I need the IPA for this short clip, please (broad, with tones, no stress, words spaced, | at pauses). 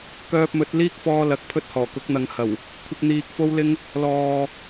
kœː˧p̚mɵ˨˥t̚ liː˥k̚fɔː˧lɐ˨k̚ pʰɵ˥t̚hɔː˨˩kʊ˨˥k̚ n̪ɐ˨˥ŋhɐ˨˩w | kʷʰɪ˧k̚n̪iː˨k̚fo˥wlɪ˥ŋ | lɔː˨